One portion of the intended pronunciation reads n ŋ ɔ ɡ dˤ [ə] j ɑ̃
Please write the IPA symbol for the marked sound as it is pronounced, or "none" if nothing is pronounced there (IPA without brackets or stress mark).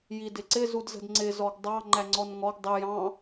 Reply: ə